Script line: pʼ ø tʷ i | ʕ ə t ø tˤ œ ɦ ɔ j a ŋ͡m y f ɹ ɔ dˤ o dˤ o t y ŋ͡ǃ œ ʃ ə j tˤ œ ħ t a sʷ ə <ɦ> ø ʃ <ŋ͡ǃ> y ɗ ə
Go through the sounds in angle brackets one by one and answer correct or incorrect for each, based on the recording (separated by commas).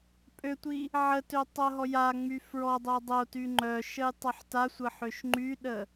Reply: incorrect, correct